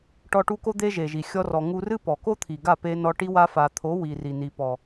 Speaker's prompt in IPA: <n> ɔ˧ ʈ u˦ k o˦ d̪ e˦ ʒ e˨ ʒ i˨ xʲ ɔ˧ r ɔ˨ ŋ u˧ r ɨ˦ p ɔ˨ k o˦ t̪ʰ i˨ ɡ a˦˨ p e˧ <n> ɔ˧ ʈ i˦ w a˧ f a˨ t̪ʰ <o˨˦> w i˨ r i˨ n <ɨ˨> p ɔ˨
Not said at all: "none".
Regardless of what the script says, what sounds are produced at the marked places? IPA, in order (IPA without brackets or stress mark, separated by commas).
ʈ, n, o˨˦, i˨